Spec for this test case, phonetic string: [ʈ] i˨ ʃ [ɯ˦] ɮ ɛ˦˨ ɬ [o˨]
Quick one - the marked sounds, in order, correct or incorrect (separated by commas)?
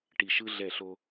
correct, correct, incorrect